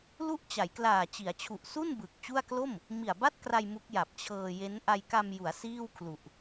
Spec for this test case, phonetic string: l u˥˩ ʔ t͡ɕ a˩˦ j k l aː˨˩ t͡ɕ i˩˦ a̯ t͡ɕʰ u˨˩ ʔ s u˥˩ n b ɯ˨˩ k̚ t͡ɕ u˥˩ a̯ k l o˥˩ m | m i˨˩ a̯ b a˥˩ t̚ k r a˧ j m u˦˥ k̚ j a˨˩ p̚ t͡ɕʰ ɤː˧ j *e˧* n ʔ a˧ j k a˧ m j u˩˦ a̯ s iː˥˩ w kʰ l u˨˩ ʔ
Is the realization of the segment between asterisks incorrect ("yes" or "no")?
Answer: yes